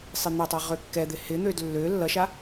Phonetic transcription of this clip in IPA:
sˤ ɪ n̪ ʌ tˤ a ʁ ø kː ɛ d̪ ɪ h ɪ n̪ ø d lː ø lː ʌ ʃ a

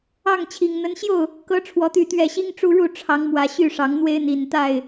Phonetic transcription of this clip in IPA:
ɑ˥˨ ŋ t͡ɕʰ i˨˩ ŋ n̪ ə˨˦ n ɕ j o˥˨ ʊ̯ | k ɤ˨˦ ʈ͡ʂʰ w ɔ˨˦ t̪ y˥˨ t̪ ɥ ɛ˥˨ ɕ i˦ ŋ ʈ͡ʂ u˦ ɻ u˥˨ ʈ͡ʂʰ ɑ˨˦ ŋ m w ä˨˩ ɕ y˥˨ ʂ ɑ˨˦ ŋ n̪ w e˦ ɪ̯ n̪ i˨˩ n t̪ a˥˨ ɪ̯

